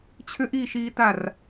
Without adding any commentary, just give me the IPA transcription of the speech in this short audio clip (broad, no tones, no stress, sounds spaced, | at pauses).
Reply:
t͡ɕʰ ʏ ʔ iː ʃ iː t a r